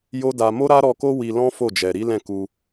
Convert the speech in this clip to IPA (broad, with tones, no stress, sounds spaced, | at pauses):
j o˦ d a˧ m o˦ ɾ a˦ ɾ ɔ˧ k o˦ w i˧ l ɔ̃˦ f o˦˨ d͡ʒ ɛ˨ ɾ i˨˦ l ɛ̃˦˨ k u˧